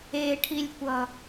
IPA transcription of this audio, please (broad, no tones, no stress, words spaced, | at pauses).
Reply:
eʈʰilʲkʷʌ